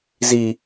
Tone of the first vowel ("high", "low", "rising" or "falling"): low